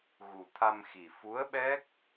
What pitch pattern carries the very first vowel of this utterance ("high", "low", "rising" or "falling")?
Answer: low